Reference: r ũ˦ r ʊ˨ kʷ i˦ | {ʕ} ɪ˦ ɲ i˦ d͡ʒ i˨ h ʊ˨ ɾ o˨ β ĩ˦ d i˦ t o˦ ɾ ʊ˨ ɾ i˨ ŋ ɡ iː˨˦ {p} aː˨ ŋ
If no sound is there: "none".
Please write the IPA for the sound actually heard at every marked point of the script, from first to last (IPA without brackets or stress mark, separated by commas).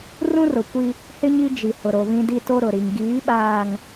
h, ɓ